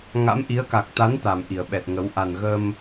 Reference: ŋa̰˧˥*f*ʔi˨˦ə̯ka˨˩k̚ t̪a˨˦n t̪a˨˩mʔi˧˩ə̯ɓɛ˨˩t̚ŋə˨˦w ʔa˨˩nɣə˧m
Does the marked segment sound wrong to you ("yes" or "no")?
yes